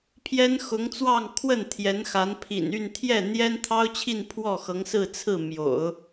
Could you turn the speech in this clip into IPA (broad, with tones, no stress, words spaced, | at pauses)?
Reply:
pʰjɛ˥nxʊ˧˥ŋt͡swɑ˥˧ŋkʰwə˥˩n t̪ʰjɛ˧˥nxa˧˥n pʰḭ˨˩n y˥˧n t̪ʰjɛ˥˩n̪jɛ˥n t̪ʰɑ˥ʊ̯t͡ɕʰi˥˧n pʰwɔ˥˩xɤ˧˥ŋ sɹ̩˥˧t͡sʰɹ̩˥˩ mjo̰˨˩˦ʊ̯